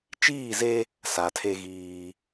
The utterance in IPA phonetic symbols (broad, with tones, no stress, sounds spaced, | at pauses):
t͡ʃ iː˦˨ z e˦ | s a˨ tʰ e˦ ɣ iː˦